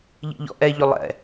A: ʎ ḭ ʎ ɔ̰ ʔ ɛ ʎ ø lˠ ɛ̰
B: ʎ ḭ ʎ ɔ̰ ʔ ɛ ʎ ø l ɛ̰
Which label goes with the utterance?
A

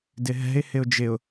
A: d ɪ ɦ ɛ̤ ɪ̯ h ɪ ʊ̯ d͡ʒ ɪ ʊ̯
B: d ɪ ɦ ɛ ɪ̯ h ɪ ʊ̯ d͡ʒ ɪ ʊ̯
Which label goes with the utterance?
A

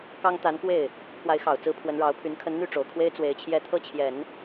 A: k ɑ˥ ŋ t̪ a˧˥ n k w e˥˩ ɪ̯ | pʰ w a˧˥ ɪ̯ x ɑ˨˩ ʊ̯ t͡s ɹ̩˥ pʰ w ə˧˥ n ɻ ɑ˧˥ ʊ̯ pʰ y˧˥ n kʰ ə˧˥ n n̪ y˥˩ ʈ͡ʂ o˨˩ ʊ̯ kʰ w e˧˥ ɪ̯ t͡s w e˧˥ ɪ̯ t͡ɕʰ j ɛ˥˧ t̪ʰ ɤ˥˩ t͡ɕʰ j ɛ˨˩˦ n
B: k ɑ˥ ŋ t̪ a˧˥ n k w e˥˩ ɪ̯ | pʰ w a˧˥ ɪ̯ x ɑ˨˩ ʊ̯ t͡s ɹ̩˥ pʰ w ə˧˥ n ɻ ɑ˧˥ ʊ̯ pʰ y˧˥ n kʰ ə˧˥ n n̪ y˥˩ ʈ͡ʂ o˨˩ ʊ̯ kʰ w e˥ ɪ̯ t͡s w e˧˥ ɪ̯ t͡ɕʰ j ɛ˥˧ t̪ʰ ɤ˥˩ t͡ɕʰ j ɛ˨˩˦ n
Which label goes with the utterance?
B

